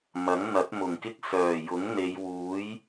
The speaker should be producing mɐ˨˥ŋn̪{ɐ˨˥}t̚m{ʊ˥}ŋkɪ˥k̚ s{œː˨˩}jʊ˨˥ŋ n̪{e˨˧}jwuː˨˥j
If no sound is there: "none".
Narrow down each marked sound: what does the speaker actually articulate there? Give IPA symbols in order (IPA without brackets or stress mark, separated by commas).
ɐ˨˥, ʊ˨˩, œː˨˩, e˨˧